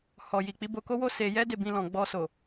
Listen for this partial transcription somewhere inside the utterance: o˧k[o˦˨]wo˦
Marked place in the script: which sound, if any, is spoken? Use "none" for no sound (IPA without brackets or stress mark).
o˦